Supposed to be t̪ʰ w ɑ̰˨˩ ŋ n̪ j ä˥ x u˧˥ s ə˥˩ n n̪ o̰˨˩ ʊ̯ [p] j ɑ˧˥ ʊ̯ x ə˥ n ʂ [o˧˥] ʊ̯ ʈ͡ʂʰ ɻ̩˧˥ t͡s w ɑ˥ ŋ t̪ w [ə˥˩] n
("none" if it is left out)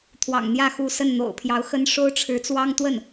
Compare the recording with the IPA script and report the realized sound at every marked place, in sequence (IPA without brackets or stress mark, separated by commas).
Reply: pʰ, o˥, ə˥˩